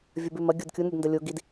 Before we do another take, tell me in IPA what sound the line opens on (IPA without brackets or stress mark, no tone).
vʲ